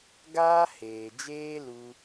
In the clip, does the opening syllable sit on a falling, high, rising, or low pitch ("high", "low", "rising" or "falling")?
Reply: high